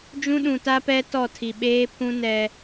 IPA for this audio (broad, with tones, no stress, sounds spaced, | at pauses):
d͡ʒ ũ˦ ɗ ũ˨ t a˦ p ɛ˦ t ɔ˦˨ tʰ i˨ ɓ eː˦ pʰ ũ˦ n ɛ˦